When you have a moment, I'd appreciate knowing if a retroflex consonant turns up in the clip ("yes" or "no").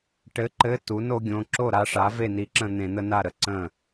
yes